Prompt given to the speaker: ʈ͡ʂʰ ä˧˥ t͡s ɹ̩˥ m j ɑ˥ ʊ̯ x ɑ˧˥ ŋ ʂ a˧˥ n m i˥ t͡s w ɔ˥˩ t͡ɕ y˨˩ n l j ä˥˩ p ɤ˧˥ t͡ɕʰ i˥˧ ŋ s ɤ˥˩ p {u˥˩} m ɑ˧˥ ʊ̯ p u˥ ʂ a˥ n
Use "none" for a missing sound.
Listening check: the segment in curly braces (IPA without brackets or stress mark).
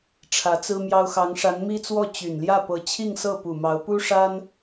u˨˩